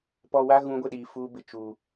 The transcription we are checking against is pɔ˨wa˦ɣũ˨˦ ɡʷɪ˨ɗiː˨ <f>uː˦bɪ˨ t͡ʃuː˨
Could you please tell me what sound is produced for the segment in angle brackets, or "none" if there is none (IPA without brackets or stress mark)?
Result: f